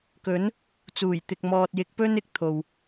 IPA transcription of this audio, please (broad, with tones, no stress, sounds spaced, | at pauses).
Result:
k ɵ˨˥ n | t͡s uː˨˩ j t̪ ɪ˨ k̚ m ɔː˨ t̚ j ɪ˨˥ k̚ p ɵ˥ n ɪ˨ k̚ t̪ʰ o˨ w